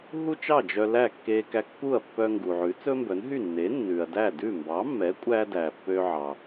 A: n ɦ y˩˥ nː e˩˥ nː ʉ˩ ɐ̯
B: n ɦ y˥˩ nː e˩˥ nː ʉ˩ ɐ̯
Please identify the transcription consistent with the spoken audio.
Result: B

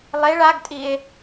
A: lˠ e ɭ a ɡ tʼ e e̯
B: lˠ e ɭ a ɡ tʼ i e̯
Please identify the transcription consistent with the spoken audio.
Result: B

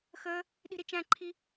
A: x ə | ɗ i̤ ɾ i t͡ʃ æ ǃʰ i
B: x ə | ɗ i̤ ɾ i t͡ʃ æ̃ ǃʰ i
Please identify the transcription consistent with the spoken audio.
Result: B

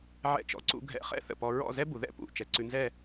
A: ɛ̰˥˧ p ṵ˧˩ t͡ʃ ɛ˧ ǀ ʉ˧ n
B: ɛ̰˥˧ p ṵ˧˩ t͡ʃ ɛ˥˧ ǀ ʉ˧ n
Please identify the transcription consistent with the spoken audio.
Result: A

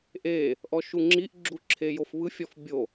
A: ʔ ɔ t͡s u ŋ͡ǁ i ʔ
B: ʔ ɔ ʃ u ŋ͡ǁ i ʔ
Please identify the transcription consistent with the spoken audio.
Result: B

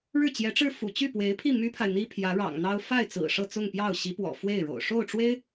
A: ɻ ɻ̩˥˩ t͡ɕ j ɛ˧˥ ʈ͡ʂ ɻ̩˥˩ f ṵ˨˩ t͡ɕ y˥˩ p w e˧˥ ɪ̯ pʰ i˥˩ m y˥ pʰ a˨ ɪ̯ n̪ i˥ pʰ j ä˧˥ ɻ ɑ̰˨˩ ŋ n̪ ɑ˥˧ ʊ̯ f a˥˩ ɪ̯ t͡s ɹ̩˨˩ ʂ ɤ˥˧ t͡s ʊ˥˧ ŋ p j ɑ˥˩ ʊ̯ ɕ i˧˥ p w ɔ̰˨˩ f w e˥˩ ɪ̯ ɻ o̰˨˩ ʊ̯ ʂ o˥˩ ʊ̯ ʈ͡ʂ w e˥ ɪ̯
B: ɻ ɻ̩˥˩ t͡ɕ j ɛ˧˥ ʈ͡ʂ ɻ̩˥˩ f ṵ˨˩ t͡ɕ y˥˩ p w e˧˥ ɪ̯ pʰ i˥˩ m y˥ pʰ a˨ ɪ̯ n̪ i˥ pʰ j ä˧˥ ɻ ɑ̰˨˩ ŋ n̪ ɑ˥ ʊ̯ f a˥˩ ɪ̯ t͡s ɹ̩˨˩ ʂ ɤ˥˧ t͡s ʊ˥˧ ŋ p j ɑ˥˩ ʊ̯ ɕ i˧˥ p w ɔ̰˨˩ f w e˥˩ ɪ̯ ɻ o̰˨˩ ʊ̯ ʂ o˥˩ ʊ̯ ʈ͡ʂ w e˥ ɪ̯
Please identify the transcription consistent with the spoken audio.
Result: B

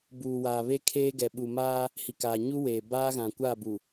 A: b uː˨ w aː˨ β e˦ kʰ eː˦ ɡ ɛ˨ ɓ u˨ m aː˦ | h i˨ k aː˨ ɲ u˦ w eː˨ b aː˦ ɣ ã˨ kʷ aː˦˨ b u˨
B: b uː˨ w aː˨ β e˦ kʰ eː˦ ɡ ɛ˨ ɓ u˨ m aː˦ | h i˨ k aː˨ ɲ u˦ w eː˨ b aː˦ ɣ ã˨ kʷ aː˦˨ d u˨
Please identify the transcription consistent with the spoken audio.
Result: A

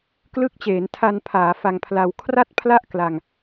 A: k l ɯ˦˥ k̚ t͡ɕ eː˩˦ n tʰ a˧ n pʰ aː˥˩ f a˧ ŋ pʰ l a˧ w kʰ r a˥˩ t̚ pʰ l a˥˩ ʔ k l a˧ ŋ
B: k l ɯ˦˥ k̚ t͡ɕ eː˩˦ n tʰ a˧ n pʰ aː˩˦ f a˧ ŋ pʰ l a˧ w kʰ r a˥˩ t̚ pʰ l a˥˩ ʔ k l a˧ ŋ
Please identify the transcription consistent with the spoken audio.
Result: B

